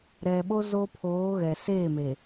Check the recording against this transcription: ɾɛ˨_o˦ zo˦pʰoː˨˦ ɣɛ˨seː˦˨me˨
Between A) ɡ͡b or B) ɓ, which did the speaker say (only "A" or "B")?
B